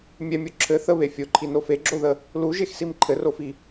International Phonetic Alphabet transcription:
mʲ ɛ mʲ o ǁʰ ɘ θ ə β e fʲ o ǃʰ i n o f e ɡ͡ǁ o ð ə | l u ʒ e x s i m ǃʰ ɘ r o f i

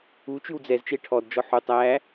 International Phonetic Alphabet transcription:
u t͡ʃ ʉ w d͡z ɛ z t͡ʃ e ʈʰ ɔ d d͡ʒ ɔ ħ u tˤ æ

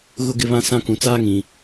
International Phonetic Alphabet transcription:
ɣ ʊ˦ ɡ ɪ˦ β ã˦ s ã˦ k ũ˨ t͡s aː˦ ŋ ĩ˨

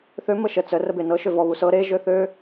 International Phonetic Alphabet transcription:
θ ø m ə ʃ ə t͡s ə r ə b e n ɤ ʃ ø v ɔ β u s ɤ ɾ e ʒ ø θ ø

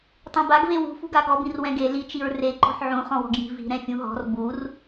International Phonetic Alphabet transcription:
tˤ ẽ b a ɡ v e w ṳ f ṳ ɡ a ɡ ɔ b ĩ r w ɛ̃ ɡ e l i t͡ʃ i ɹ r e ǃ ɔ̤ ħ ʕ ũ χ ɔ̃ w ɔ̤ ɡ j i̤ v i̤ ɾ ɛ̃ fʲ ũ ɦ ɔ̤ r b u r

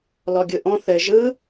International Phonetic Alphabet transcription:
l ɔ ɡʲ ɯ ʔ ɔ̃ θ ɘ ʒ ɯ

